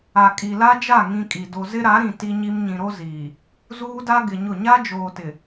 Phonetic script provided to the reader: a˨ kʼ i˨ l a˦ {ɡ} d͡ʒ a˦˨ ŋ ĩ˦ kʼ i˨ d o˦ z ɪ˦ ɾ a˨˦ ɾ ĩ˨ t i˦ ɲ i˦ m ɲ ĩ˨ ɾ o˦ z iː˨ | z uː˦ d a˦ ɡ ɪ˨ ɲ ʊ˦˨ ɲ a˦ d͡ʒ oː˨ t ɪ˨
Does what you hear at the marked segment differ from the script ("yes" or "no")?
yes